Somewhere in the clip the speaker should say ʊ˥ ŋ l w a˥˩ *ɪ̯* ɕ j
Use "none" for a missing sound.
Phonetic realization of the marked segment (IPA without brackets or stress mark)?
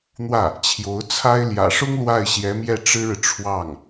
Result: ɪ̯